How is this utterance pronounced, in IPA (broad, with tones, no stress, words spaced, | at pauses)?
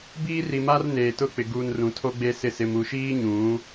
biː˦ri˨ma˦r neː˨tʊ˦˨k͡pɪ˨ ɡuː˨n rũ˨˦tʰo˦ɡ͡be˦sɪ˦˨ sɪ˨mu˨ʃiː˦ ɲũ˨˦